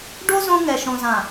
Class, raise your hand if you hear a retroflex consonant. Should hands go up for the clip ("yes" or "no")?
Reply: yes